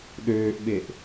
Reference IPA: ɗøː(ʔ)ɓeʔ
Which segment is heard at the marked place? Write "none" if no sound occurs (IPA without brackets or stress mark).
ʔ